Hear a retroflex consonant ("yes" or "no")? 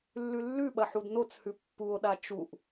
no